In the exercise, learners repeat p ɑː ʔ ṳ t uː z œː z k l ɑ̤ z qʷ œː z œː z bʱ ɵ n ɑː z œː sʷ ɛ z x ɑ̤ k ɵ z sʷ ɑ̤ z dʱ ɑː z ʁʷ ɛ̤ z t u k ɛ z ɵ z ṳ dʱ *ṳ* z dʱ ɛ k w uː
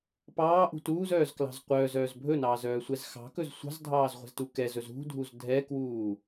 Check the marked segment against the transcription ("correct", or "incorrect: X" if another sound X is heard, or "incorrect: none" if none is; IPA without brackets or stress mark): incorrect: u